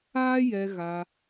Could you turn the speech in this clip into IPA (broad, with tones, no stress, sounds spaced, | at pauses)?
aː˦ j ɛ˧ ɣ a˧